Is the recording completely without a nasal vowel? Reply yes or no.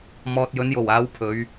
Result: yes